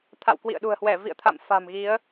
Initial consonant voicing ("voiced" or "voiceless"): voiceless